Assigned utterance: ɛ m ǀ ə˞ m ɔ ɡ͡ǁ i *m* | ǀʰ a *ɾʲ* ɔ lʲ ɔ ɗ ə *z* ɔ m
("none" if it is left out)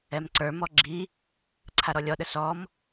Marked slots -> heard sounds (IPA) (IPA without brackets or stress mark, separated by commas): none, ɾ, s